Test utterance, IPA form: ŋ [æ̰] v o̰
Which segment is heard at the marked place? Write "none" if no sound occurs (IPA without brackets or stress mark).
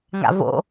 a̰